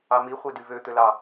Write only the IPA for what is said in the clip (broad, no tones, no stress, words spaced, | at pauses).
ɑmi χʷedyvø t̪ølɑ